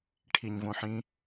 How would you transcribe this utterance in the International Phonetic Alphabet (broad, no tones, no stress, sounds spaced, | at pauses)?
ʈʰ i ɲ v õ ħ ĩ